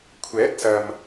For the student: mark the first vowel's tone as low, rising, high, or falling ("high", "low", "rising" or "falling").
rising